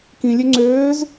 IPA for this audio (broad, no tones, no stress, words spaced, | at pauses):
kĩlʲø ŋ͡ǀøːz